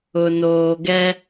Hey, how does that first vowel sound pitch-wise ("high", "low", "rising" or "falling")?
low